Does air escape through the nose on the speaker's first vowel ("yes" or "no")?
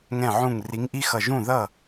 yes